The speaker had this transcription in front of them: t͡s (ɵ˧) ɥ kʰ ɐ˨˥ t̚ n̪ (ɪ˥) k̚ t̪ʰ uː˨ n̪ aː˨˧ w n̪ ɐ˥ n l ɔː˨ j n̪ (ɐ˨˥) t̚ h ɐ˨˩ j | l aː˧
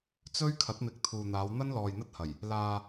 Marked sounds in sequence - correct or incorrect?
incorrect: ɵ˥, incorrect: ɪ˨˥, incorrect: ɐ˥

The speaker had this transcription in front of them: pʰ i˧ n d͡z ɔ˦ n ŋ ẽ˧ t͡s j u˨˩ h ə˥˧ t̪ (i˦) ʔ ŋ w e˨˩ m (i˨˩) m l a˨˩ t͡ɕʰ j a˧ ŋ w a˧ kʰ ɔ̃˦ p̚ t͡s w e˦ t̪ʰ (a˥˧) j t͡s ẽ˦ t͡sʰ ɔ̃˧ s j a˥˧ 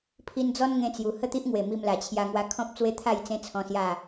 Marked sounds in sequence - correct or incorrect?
correct, incorrect: i˧, correct

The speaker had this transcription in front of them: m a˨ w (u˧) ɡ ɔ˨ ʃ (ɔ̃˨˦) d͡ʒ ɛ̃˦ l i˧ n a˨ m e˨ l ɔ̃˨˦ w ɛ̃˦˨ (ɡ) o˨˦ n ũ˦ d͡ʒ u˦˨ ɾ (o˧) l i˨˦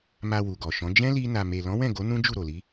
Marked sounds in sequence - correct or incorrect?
incorrect: u˨, correct, correct, incorrect: o˨

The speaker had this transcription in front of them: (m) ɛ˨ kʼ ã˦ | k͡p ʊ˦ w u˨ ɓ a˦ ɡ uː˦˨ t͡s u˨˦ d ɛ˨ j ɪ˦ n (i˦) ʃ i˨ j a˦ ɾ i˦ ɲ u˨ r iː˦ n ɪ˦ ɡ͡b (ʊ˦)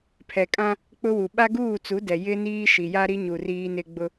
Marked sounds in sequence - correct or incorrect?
incorrect: pʰ, incorrect: iː˦, correct

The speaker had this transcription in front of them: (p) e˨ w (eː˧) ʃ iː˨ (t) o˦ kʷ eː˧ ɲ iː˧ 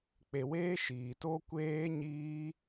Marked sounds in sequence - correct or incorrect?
incorrect: k͡p, correct, correct

